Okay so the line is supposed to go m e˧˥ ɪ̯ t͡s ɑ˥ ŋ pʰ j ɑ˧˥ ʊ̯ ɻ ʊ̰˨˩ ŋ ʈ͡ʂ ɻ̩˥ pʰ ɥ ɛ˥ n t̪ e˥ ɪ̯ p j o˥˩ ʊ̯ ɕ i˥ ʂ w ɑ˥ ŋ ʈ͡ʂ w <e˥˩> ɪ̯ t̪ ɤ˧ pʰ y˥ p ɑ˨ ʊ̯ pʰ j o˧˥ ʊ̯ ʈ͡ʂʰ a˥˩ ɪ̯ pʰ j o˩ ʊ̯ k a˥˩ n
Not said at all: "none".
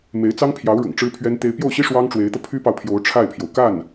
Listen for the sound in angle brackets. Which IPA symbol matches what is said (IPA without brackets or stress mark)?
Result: e˧˥